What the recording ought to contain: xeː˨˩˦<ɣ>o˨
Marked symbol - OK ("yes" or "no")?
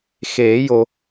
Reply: no